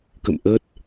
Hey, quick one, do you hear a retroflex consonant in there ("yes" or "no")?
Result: no